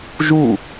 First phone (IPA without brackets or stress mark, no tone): ʒ